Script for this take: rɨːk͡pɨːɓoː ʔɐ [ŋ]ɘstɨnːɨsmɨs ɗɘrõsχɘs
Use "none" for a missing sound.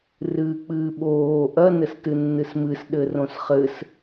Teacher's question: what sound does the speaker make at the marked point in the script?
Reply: n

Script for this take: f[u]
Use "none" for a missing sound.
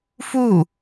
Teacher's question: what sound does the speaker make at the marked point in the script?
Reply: u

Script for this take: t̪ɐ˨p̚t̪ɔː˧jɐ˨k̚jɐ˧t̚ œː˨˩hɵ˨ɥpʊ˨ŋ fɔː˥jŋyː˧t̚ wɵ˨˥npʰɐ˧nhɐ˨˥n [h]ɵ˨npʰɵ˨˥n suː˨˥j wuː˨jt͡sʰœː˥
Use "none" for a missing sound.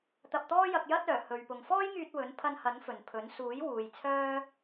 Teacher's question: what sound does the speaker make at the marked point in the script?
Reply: f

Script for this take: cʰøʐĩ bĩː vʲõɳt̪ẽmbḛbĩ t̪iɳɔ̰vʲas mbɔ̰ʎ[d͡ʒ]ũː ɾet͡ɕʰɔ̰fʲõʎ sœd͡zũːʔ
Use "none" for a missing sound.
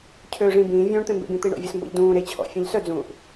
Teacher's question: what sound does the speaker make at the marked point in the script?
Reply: d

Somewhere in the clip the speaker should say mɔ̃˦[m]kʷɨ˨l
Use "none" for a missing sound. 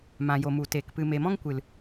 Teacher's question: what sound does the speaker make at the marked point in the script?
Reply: ŋ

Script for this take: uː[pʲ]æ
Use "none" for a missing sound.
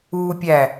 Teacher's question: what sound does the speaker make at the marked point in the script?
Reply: pʲ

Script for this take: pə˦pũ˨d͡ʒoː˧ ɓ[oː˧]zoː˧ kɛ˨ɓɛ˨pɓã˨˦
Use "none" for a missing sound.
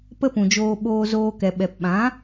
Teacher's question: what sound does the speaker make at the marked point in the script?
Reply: oː˧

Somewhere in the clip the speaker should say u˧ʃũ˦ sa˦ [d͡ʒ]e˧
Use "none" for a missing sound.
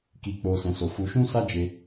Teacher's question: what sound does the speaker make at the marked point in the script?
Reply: d͡ʒ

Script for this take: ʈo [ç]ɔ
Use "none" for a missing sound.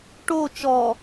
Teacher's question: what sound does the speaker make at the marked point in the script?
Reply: t͡ʃ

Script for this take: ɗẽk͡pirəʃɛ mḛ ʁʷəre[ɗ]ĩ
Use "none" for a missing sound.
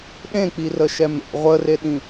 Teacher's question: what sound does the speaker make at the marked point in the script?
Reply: ɗ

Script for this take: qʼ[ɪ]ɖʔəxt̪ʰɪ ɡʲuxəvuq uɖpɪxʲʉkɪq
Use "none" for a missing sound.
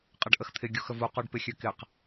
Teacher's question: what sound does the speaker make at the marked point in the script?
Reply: ə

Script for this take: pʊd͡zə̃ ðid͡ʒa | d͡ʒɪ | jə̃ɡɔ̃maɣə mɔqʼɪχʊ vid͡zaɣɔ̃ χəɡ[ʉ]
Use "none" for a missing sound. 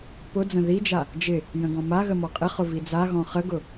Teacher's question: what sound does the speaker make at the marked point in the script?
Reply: ʊ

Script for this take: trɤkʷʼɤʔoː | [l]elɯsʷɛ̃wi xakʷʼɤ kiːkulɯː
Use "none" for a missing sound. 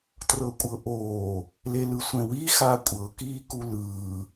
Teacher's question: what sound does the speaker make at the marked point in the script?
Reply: l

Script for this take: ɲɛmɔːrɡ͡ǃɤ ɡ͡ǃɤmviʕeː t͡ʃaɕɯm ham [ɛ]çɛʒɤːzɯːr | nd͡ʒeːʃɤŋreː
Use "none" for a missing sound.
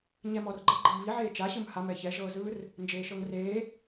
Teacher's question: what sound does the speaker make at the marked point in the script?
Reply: ɛ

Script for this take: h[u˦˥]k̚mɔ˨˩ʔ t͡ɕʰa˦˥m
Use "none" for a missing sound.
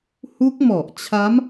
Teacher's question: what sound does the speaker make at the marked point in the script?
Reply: u˦˥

